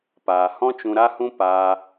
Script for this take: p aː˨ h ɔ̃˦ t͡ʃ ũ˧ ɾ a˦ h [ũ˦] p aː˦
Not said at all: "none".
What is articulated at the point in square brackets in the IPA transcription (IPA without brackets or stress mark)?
ũ˦